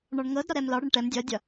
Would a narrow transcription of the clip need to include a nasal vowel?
no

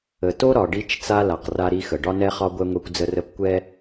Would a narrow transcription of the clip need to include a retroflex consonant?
yes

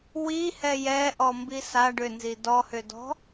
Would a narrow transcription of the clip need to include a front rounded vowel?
yes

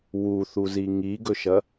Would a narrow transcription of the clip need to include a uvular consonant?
no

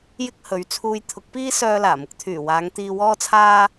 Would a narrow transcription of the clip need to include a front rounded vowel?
yes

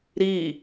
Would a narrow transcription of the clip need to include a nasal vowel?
no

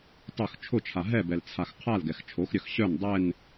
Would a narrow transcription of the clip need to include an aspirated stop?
yes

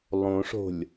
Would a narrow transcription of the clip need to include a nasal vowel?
yes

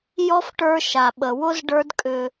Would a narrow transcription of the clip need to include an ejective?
yes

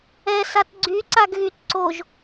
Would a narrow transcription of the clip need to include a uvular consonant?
no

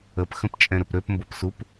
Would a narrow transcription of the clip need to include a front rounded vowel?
yes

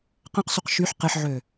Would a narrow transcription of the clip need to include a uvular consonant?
yes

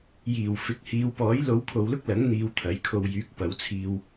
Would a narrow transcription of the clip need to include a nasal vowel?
no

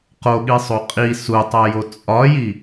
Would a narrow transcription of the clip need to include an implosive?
yes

